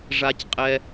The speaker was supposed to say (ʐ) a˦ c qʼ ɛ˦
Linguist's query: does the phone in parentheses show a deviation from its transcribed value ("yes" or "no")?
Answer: no